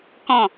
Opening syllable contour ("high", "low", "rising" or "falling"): falling